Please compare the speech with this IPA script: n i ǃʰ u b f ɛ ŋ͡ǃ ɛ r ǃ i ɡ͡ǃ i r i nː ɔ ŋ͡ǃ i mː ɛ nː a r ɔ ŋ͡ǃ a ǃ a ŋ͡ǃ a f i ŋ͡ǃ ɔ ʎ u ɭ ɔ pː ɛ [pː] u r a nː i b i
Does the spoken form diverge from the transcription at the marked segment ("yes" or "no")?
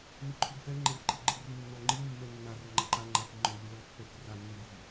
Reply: yes